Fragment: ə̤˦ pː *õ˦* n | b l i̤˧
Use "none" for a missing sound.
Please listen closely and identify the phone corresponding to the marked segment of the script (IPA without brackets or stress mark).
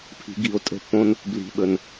õ˦